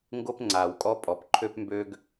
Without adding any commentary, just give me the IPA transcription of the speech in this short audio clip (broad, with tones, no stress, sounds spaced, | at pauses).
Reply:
ŋ ɡ o˥ p ŋ͡ǀ aː˩ w kʼ ɔ˥ pʼ ɔ˩ p ǃʰ ø˥ p m b ø˥ ɡ